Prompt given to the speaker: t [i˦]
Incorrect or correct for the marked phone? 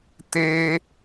incorrect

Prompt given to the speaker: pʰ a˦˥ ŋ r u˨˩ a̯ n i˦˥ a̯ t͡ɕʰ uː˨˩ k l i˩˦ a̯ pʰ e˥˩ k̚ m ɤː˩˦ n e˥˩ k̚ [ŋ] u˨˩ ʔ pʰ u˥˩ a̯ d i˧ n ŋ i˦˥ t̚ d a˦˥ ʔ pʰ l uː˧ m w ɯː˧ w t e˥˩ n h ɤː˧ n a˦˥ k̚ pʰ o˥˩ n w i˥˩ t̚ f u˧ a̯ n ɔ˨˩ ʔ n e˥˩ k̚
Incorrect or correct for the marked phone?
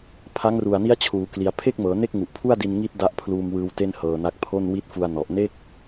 correct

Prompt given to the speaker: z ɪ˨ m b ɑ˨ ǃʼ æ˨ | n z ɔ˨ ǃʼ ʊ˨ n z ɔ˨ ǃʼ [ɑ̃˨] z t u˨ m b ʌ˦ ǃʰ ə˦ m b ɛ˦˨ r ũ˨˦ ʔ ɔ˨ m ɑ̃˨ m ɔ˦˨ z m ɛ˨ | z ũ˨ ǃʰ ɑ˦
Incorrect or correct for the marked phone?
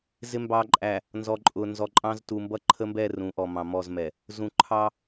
incorrect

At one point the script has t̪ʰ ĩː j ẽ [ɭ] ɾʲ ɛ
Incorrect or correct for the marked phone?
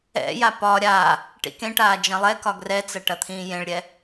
correct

